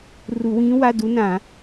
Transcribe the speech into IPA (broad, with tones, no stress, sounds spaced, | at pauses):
r u˧˩˧ w ĩː˧˥ w a˧˥˧ d u˧˥ n ã˧˩˧